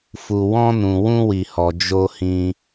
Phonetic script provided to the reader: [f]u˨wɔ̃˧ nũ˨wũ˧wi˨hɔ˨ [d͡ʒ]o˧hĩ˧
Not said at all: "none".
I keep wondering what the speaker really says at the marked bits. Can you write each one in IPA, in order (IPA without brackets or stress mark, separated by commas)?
f, d͡ʒ